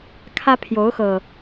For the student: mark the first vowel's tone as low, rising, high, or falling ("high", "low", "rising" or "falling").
high